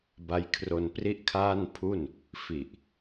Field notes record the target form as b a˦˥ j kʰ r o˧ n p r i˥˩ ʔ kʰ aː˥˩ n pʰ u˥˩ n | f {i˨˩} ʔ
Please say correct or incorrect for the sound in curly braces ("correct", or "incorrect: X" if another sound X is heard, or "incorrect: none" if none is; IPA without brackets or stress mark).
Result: correct